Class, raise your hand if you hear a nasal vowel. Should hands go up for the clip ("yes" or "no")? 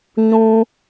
yes